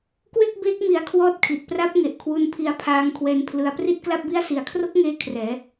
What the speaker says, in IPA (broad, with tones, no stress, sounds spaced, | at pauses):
k w e˥˩ k̚ b eː˦˥ k̚ m i˧ a̯ kʰ w ɔː˥˩ t̚ kʰ i˨˩ t̚ p r a˦˥ p̚ ŋ e˨˩ ʔ kʰ w u˧ n pʰ i˧ a̯ pʰ aː˧ ŋ kʰ w ɛː˧ n pʰ l ɯ˧ a̯ p r i˥˩ t̚ k l a˥˩ p̚ b i˥˩ a̯ s i˩˦ a̯ kʰ r o˦˥ k̚ ŋ eː˧ kʰ r ɛː˩˦